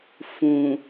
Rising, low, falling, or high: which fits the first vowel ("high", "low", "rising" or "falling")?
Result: low